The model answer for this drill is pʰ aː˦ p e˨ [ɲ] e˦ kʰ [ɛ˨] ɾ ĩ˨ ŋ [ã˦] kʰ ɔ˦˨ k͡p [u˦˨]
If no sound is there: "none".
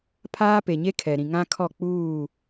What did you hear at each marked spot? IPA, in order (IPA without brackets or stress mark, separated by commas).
ɲ, ɛ˨, ã˦, uː˦˨